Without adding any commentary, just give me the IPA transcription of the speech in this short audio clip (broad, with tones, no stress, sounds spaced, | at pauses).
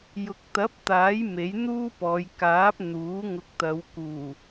j ʊ˨˥ k̚ t̪ ɐ˨˥ p̚ t̪ aː˨˥ j m e˨˥ j n̪ uː˥ p ɔː˨˧ j k aː˨˥ p̚ n̪ uː˨˥ ŋ ʊ˨˥ k̚ t̪ ɐ˨˧ w k uː˨˩